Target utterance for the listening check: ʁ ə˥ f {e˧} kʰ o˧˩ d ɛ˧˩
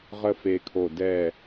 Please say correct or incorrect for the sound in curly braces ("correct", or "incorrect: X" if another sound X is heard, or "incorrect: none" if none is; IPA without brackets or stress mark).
correct